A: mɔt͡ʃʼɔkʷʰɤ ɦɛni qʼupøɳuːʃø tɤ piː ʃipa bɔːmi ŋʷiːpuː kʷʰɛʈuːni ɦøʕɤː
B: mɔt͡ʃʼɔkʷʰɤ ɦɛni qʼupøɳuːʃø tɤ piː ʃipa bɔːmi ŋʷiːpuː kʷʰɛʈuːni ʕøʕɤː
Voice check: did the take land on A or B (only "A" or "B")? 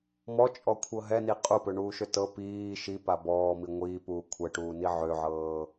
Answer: B